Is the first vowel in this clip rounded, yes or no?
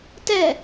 no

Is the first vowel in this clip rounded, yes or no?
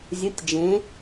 yes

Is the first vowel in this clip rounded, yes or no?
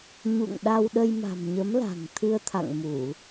yes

